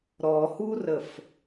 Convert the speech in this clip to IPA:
ɾ ɔ h u r ə f

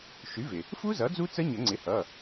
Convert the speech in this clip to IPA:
ʃ y˩˥ v ɪ˩ | f u˦˥ z ʌ˩˥ d͡z u˦˥ t͡s ə˦˥ ɲ ə˨˩˦ ŋ͡ǀ ɪ˩˥ h ʌ˩˧˩

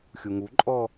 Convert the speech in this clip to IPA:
xʲ u ŋ u ǃʼ ɔ

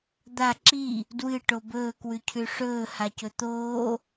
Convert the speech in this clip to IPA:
d̪ a ǁ i | d w ɨ ʈ o b ɵː k w ʉ cʰ ʉ ʂ ɵː h a c ɵ t̪ oː

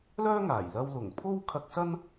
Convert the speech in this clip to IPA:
l œː˥ ŋ aː˨˩ j l ɐ˧ w l ʊ˨˩ ŋ pʰ o˥ w kʰ ɐ˧ k̚ s ɐ˥ n

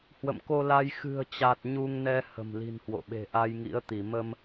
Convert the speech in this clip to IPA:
h w ə̰˧˨ m k o˧ l a˧ j x ɨ̤˨˩ ə̯ t͡ɕ a˨˩ t̚ ɲ u˧ ŋ n ɛ˧ h ə̤˨˩ m l i̤˨˩ n h w o̰˧˨ ɓ e̤˨˩ ʔ a˧ j ŋ ḭ˧˥ ə̯ t̪ i˧˩ m ə˧ m

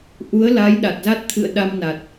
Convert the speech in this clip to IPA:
ʔ u˨˦ ə̯ l a˨˦ j ɗ a˨˩ t̚ z a˦˥ t̚ t̪ʰ ɨ̰˧˨ ə̯ ɗ a˧ m n a˨˩ t̚

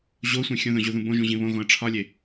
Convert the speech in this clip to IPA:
ʑ o sʷ ĩ xʲ õ ð õ ʑ u ð ũ b õ ʒ ũ ʑ ĩ β õ ɣ õ ə̯ ʈ͡ʂʰ ɒ lʲ e

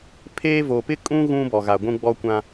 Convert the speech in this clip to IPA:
pʰ eː˦ v o˨ p ɪ˦ kʼ ũ˦ ɣ ũ˦ b ɔ˨ ɣ a˨ ɡʷ ũ˦ ɡ͡b ɔ˦ kʷ ã˦

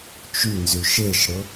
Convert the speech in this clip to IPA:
t͡ʃ y n z y ʃ e ʃ ɽ ʊ

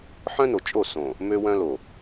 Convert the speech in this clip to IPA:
ħ œ̃˦ n o˨ t͡ʃʼ o˦˨ s õ˨ | m ø˦ w œ̃˦ l o˨

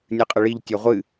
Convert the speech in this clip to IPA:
nʲ ɨ qʼ ə ɭ i ʎ tʲ ɔ ʁʷ ɨ

